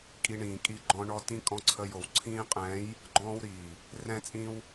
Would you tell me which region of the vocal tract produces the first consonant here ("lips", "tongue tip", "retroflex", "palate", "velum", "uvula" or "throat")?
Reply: velum